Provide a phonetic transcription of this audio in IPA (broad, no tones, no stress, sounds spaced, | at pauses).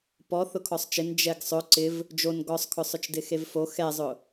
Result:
p ɔ θ ʊ kʰ ɔ sˤ t͡ʃ ɪ n d͡ʒ ɛ ɡ sˤ ʊ ǀ ɪ v | d͡ʒ o n ɡ ɔ sˤ kʰ ʊ sˤ ʊ t͡ʃ d ɪ x e v f o x ɛ zˤ ʊ